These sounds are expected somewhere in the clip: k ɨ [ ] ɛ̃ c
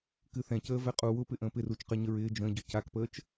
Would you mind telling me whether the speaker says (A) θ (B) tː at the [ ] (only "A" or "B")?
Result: A